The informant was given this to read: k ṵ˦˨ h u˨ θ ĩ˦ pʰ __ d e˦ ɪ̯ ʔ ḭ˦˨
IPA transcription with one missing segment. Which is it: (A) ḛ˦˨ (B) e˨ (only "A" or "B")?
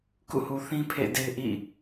A